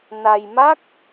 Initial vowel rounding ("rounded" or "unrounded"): unrounded